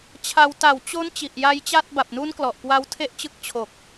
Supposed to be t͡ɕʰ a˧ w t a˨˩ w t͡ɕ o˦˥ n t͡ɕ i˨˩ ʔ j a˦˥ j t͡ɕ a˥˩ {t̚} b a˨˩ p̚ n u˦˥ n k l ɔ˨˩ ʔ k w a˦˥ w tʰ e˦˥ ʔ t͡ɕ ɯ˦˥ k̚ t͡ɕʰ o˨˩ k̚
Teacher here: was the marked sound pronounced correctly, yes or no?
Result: yes